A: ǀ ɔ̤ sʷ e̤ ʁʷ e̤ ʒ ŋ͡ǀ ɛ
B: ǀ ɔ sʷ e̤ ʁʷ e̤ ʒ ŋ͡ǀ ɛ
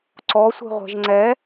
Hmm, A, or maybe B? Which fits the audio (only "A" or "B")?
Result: B